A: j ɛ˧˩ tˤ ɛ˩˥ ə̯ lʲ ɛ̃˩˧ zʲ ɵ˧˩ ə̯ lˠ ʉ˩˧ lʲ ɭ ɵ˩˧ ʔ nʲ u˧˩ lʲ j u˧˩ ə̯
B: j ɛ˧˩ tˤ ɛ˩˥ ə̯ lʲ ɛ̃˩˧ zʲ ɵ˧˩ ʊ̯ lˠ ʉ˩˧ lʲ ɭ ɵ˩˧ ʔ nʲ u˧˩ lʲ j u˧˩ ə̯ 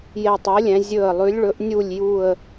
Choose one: A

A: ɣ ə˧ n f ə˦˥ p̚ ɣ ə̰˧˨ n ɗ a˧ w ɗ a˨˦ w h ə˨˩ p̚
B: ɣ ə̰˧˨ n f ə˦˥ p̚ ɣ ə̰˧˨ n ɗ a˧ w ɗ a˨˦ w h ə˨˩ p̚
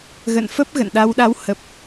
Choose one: B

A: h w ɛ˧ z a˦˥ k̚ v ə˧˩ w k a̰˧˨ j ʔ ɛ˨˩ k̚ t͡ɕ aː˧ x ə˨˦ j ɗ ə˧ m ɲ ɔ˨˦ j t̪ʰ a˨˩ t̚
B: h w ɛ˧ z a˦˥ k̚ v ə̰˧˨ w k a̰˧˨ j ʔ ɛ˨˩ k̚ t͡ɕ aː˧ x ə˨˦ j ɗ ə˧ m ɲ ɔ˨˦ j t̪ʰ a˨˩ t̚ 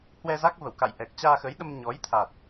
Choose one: A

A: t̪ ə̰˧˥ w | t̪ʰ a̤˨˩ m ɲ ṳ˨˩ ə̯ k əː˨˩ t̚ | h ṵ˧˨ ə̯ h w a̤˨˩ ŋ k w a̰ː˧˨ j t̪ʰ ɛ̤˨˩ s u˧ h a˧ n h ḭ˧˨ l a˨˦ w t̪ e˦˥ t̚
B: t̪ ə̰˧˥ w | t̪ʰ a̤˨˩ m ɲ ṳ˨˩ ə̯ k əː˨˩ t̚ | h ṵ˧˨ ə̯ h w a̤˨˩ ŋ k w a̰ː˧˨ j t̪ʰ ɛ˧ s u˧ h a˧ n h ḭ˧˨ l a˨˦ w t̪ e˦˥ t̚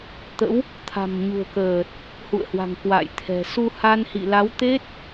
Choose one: A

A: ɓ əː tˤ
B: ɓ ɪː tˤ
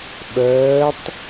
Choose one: A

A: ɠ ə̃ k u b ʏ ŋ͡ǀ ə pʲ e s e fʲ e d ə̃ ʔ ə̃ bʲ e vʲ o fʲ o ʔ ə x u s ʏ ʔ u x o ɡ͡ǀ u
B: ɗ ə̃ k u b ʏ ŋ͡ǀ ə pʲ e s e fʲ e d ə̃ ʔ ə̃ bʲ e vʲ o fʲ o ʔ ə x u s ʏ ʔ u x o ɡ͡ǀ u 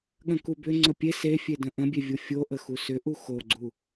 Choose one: A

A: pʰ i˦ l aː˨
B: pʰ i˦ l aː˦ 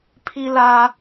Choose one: B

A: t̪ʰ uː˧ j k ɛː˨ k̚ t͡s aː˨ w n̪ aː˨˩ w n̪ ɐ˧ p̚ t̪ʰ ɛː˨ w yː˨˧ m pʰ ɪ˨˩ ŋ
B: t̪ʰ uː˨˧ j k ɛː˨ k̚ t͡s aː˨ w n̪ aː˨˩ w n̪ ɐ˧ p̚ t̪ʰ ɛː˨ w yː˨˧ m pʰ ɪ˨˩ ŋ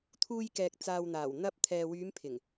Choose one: A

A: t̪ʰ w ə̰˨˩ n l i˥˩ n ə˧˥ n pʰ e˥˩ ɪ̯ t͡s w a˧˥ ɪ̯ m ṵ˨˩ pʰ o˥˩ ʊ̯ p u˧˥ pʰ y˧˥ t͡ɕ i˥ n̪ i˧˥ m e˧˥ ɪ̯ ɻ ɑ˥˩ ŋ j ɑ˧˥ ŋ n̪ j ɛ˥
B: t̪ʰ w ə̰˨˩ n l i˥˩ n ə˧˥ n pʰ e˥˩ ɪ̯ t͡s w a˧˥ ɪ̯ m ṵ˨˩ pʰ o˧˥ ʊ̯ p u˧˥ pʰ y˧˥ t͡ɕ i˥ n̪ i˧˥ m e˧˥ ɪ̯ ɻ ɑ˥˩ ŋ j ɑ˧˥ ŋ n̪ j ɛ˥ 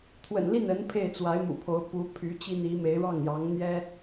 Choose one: B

